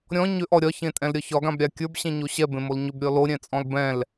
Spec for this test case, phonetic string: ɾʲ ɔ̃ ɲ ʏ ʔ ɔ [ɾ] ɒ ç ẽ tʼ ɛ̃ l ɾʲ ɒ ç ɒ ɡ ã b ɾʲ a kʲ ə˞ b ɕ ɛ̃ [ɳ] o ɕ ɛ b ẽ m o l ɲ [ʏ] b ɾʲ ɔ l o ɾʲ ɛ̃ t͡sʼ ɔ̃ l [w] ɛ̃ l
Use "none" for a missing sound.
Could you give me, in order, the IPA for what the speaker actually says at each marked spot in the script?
ɾʲ, ɲ, ʏ, b

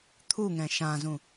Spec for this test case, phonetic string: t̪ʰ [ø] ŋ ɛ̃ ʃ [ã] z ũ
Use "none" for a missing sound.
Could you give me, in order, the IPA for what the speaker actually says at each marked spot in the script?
u, ã

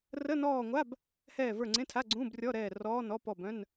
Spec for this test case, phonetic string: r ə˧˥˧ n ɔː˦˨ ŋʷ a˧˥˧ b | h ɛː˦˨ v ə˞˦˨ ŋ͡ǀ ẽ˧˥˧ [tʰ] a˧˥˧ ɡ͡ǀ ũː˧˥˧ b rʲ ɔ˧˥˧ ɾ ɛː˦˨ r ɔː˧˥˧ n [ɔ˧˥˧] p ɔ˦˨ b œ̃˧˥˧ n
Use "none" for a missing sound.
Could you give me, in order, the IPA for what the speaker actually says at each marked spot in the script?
tʰ, ɔ˧˥˧

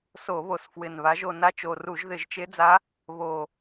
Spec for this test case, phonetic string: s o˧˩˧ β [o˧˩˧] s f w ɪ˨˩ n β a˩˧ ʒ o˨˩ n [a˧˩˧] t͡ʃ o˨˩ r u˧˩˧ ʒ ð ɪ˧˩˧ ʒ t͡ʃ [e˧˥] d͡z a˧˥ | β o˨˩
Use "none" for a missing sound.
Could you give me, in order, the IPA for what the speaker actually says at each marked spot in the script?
o˨˩, a˧˥, e˧˥

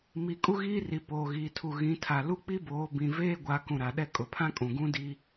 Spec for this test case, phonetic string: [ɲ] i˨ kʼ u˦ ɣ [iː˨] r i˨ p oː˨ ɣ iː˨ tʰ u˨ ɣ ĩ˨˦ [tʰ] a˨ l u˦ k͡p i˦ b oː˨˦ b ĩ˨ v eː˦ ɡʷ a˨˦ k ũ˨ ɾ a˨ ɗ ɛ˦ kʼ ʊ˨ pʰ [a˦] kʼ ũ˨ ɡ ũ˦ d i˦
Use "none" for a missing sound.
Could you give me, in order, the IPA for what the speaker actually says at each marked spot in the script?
m, iː˦, tʰ, ã˦

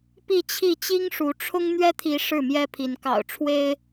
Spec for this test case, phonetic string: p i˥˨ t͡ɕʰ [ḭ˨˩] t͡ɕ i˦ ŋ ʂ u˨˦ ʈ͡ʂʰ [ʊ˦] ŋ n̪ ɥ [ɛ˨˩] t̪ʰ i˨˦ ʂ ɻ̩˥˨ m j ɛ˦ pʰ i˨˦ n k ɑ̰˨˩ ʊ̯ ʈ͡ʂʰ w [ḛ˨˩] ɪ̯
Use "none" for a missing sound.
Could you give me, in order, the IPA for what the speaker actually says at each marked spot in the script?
i˥˨, ʊ˦, ɛ˦, e˦

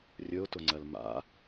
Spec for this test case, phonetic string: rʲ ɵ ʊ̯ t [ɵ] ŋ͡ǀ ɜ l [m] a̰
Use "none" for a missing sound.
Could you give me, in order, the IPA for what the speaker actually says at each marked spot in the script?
ʊ, m

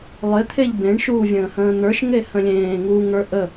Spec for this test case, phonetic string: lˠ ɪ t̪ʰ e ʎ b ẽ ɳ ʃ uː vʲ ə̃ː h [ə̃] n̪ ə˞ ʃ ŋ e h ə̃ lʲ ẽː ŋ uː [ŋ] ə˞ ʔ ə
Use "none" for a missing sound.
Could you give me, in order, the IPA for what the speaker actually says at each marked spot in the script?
ə̃ː, ŋ

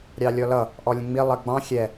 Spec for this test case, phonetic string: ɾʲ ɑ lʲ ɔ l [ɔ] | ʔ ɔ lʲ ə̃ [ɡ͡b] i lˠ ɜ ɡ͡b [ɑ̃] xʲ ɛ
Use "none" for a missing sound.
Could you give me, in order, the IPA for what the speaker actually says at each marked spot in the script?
ʌ, ŋ͡m, ɑ̃

